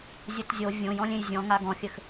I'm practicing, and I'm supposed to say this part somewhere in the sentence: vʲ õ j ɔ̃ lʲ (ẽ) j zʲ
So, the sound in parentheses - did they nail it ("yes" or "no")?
yes